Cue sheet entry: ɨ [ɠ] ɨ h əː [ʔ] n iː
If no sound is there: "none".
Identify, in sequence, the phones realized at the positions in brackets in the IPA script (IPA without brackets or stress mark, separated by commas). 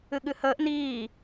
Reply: ɠ, ʔ